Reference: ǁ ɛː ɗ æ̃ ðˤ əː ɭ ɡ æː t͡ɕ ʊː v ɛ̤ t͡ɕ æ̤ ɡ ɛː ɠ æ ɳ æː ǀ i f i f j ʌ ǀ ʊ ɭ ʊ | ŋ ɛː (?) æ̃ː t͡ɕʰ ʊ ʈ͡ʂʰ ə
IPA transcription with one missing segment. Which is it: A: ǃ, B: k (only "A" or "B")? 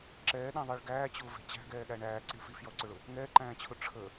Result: A